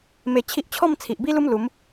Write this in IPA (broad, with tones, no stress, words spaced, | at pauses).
me˧ t͡ɕʰi˦ʔ t͡ɕʰɔ˥˧mt͡sʰi˨ʔ bi˦lu˦m lu˨˦m